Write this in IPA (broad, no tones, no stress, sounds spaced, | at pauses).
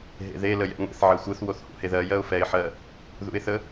ɦ ḛ ð e l ə j ɛ̰ ŋʷ ḛ θ ʕ ɜ xʷ ɯ θ w o θ h ṵ h e ð ɜ j ɜ ʊ̯ f ɛ ɪ̯ ħ ɜ | ð ṵ ɪ̯ θ ə